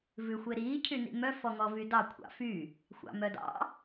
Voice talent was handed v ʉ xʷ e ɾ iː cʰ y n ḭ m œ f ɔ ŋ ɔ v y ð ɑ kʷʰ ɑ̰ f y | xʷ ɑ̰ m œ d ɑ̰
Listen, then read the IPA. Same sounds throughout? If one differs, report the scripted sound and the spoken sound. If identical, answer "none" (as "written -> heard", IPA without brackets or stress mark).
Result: ð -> d